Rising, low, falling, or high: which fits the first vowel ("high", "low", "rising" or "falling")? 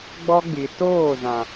high